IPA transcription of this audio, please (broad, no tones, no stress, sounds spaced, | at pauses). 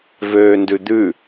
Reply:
v øː n d ʉ d̪ ʉ